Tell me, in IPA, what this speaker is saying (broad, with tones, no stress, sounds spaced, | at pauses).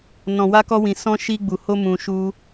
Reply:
n ɔ̃˨ w a˧ k ɔ˧ w ĩ˨ s ɔ̃˧ ʃ i˧ ɡ͡b u˨ h o˧ m ũ˧ ʃ u˦